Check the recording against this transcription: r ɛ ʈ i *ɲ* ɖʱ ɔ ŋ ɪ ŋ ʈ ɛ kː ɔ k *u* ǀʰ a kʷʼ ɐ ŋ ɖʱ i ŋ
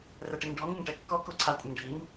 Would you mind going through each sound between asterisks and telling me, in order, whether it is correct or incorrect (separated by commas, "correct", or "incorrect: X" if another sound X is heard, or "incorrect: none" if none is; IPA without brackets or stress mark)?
incorrect: ŋ, incorrect: o